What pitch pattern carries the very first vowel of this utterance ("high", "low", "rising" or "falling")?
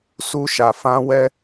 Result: high